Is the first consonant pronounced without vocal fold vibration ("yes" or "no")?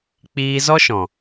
yes